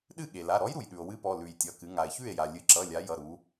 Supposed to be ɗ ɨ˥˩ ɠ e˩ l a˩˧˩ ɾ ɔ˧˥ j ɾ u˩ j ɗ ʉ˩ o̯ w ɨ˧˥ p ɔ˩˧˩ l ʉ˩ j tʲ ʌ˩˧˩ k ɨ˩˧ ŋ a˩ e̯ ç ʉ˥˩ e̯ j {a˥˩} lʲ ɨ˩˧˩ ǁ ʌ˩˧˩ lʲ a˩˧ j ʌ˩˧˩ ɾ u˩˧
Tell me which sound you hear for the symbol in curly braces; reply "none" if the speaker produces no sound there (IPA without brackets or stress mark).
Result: a˩